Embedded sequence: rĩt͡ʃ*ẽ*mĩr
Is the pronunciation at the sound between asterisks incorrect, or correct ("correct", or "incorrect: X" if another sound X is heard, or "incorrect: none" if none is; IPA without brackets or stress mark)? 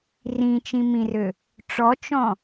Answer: incorrect: ĩ